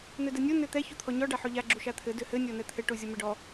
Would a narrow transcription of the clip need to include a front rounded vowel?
yes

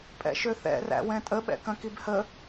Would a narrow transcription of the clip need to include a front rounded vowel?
yes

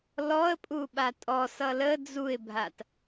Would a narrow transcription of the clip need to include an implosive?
yes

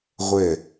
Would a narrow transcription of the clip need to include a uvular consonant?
yes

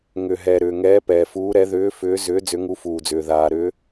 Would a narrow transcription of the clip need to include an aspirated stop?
no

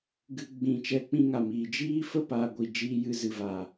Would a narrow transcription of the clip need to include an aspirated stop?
no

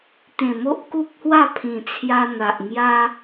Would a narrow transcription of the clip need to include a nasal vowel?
yes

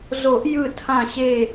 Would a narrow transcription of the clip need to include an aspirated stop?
yes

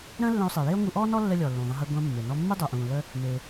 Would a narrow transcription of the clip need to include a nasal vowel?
yes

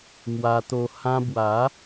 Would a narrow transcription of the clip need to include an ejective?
no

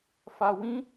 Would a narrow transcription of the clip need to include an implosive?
no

